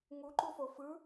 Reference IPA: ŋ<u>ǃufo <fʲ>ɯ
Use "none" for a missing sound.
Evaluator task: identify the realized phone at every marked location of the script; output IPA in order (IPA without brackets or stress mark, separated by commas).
u, f